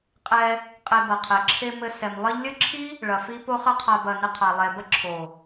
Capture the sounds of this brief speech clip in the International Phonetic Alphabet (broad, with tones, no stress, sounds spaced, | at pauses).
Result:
qʼ ɛ˧ | qʼ e˧ b ɐ˨ qʰ ɛ˨ ǁʰ e˧ m ɘ˧ s ɛ˨ m lˠ ɘ˦ ʎ lʲ ɘ˦ ǁʰ i˦ | ɭ ɐ˧ f i˦ p o˦ χ ɐ˦ qʰ a˧ b ɐ˨ n ɘ˧ qʰ a˨ lˠ ɛ˨ b ɐ˦ ǁʰ o˨